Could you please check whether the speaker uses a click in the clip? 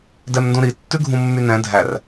no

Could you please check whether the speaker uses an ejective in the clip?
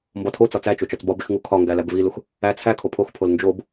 no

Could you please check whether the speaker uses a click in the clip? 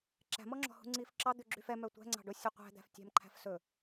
yes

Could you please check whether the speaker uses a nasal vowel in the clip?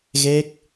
no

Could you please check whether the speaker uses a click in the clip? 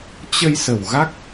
no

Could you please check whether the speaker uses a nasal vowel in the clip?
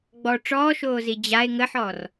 no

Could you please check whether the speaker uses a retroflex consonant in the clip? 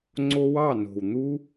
no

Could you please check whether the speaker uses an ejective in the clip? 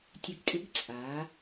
yes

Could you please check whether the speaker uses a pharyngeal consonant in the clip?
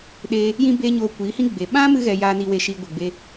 no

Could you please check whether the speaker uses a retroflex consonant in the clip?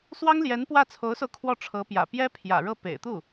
yes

